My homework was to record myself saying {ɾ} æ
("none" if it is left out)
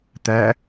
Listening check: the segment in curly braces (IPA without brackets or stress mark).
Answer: t̪